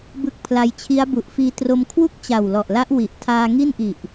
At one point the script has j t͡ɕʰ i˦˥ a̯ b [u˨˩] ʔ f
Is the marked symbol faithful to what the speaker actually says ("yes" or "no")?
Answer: yes